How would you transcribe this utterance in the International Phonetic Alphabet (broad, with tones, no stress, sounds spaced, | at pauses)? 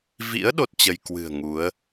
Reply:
v ḭ˧˥ ə̯ ɗ o˦˥ t̚ t͡ɕ ə˧ j k w ɨ̤˨˩ ə̯ ŋ u˨˦ ə̯